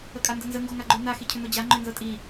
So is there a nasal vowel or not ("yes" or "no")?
no